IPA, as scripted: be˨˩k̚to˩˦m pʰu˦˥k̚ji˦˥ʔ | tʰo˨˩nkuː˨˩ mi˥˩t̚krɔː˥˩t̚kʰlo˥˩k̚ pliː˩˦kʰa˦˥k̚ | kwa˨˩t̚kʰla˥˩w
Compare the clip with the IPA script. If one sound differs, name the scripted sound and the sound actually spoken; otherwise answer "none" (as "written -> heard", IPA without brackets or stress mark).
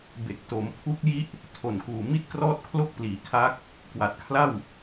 none